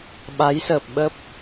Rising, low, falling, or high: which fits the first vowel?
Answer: rising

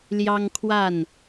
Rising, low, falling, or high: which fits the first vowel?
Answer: high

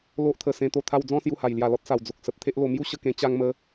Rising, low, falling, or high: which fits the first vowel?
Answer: high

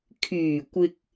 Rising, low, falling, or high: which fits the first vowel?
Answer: low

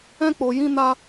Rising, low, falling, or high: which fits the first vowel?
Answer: high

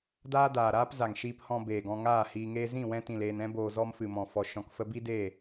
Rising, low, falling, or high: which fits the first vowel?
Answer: high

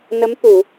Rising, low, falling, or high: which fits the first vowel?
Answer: rising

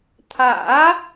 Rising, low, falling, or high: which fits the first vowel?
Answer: rising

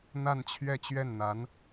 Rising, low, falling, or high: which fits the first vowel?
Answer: falling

